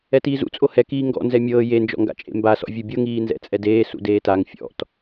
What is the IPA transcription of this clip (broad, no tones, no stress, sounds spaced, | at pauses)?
ɛ t iː z ṵ t͡sʼ o h ɛ k iː ŋ ɡ ɔ̰ n z ɛ mʲ ɤː j e n d͡ʒ ɔ̰ ŋ ɡ a̰ t͡ʃʼ ḛ m b a s ɔ̰ vʲ ɯ bʲ ɤ ŋ iː n z ɛ̰ t͡sʼ ɛ d eː s ṵ d eː t a ŋ fʲ ɔ̰ t